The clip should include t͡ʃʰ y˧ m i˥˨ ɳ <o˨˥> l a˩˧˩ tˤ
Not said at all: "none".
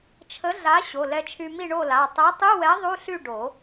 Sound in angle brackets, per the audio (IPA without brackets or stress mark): o˥˨